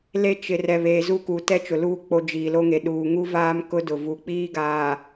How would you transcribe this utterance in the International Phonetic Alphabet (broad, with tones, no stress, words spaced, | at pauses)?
le˦t͡ʃɪ˨ rɛ˨βeː˨zu˦˨ku˨ tɛ˦t͡ʃʊ˨luː˦ k͡po˦d͡ʒiː˨lo˦ŋe˨ ɗuː˨ŋu˦vaː˦m kʊ˦dʊ˨vu˨ k͡piː˦ɡaː˨